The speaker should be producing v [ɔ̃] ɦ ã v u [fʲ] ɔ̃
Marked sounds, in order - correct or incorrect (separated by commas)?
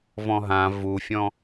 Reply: correct, correct